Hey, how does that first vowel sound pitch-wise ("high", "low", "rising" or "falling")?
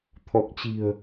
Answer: low